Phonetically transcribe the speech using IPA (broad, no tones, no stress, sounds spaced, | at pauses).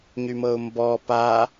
ɲ y m ɤ ʊ̯ m b ɔ p a